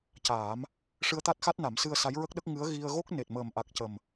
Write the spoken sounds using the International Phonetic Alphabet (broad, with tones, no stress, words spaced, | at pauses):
caː˨˩˦m | ʂɨ˧ə̯t̪a˦˥t̚xa˦˥t̚na˨˩˦m sɨ˧ə̯sa˧˥jɹə˦˥k̚ɗə˦˥k̚ ŋɨ˧˥ə̯ɣi˧ə̯ ɣo˦˥k̚ ne˨˩t̚məː˨˩mʔa˨˩k̚ cə˨˩m